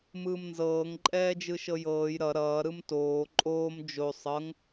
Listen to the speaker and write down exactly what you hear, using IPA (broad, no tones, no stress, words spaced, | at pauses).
mɯːmnzɤːŋ ǃʼɛːd͡ʒɯʃɤjɤːj ɾʌ ɾʌː ɾɯmtoː ǃʼoːm d͡ʒo sˤɤŋ